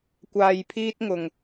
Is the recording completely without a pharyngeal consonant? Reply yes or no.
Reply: yes